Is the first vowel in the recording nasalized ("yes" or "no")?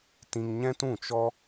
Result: yes